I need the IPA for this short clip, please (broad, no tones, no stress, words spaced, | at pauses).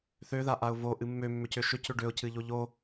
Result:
θøðaʔaʊ̯ voʔɨ mːømːʏcø ʃʏcʏ ɖøʊ̯cɨʎo ʎo